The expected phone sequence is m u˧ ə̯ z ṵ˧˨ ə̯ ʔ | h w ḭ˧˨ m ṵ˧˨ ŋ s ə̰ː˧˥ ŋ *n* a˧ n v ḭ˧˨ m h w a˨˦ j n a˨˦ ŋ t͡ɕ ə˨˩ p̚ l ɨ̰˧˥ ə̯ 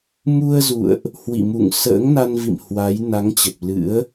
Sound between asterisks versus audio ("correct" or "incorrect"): correct